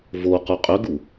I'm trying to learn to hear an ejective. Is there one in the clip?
yes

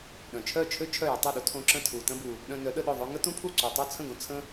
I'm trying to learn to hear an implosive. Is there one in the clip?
yes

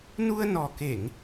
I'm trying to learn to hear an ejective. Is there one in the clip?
no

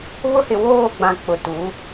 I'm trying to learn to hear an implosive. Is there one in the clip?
no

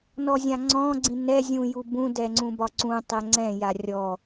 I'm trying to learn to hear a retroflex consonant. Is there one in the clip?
no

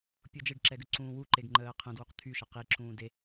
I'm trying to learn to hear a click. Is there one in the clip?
yes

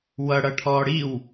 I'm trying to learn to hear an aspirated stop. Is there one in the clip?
yes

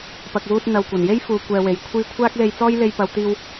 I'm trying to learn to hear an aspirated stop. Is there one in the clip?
yes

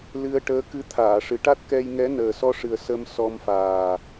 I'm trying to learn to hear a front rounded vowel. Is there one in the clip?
no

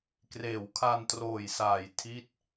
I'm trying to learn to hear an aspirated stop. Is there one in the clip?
yes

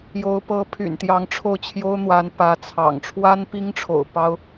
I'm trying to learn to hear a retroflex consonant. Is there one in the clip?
yes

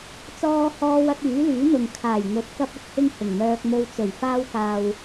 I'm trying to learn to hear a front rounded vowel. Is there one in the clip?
yes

